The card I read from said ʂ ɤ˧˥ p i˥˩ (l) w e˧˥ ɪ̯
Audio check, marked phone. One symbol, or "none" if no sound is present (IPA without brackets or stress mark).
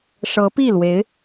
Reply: l